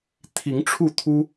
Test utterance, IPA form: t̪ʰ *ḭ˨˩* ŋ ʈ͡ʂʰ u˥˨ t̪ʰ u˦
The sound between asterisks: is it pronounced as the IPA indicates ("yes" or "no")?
no